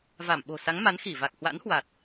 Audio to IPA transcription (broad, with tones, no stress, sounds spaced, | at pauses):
v a˧˩ m ɓ o̤˨˩ s a˨˦ ŋ m a˨˦ n x i˧˩ v a˨˩ k̚ h w a̰˧˥ n h w a˨˩ t̚